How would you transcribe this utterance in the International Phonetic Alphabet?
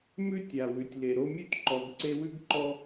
m ʉ˥ tʲ a˩ w ʉ˩ tʲ l e˨ ɾ o˦ mʲ ʉ˥ t ǃ ɔ˨ ɡ ǀ e˦ w ʉ˥ ɡ ǃ ɔ˦

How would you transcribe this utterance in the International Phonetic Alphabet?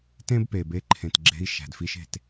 t ẽ˦ b p e˨ b e˧ ǃʰ ẽ˨ t ɡ͡ǁ e̤˧ i̯ ʃ æ̤˨ d f i˧ ʃ e̤˦˨ t

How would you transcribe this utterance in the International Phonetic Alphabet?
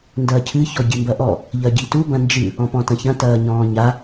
n d ɐː cʰ ɨ ç ɔ ɟ i m b ɐ ʔ ɔ | ʎ ɐ ɟ i t u b ɐ̃ n d͡ʒ ɨ | ɔ̃ p ɔ̃ t ɐ̃ ç ɐ̃ t ɐː ɲ ɔ̃ː ɲ a

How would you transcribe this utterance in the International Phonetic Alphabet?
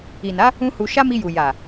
i˨ n a˨˦ | ũ˦ h u˧ ʃ a˦ m i˧ j u˨ j a˨

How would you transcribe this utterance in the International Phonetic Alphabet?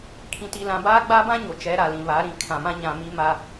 kʰ ĩ˨ t i˨ l ã˨ b aː˦ ɡ͡b aː˦ b ã˦ ɲ o˨ t͡ʃ ɛ˨˦ ɾ a˨ l ĩ˨ β a˨˦ ɾ ĩ˨ kʰ ã˨ m ã˦ ɲ ã˨ m i˦ m a˦

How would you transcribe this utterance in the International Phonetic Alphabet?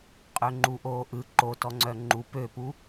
qʼ ø ŋ͡ǃ u ʔ oː ʔ ɯ ǃ o t ɔ ŋ͡ǀ œ ŋ͡ǃ u p ø p u

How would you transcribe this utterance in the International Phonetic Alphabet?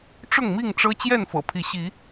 ʈ͡ʂ ʊ˥˨ ŋ m i˥˨ ŋ ʈ͡ʂ ɤ˦ t͡ɕ j ɛ˥˨ n f ɤ̰˨˩ pʰ i˨˦ ɕ i˨˦

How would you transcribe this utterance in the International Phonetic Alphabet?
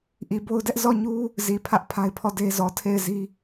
ʔ i˨ b o˦ ʊ̯ d ɛ˦ ʔ z ɔ˦˨ ɲ u˦ | z i˨ pʰ ä˦ ʔ pʰ a˦ ɪ̯ pʰ ɔ˦˨ d e˦ z ɔ˨ tʰ e˦˨ ɪ̯ z i˦

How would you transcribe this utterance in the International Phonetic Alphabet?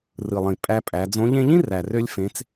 r ɯ˩ lˠ ĩ˩ pʼ æ˧ pʼ æ˩˧ d͡z õ˧˥ ʎ ẽ˥ ʎ ĩ˥ r æ˩ r ø˧ lʲ f ẽ˩˧ t͡s

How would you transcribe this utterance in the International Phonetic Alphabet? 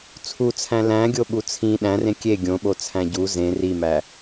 t͡sʰ u t͡sʰ æ̃ l æ̃ ɡʲ o ɓ u t͡sʰ ĩ ɗ æ̃ r ẽ kʲ e ɡʲ õ ɓ o t͡sʰ æ̃ ɟ u z ẽ r i m æ

